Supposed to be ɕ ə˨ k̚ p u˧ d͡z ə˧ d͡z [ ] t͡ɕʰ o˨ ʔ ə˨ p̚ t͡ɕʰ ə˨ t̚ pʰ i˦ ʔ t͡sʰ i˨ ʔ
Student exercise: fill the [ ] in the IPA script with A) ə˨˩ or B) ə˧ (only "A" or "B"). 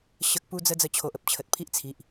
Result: B